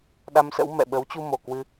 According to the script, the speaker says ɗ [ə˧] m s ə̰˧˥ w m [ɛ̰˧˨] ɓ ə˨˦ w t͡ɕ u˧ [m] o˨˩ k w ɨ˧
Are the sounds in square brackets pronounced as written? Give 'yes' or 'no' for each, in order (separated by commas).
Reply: no, yes, yes